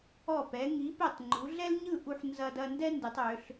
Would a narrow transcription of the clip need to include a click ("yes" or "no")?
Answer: yes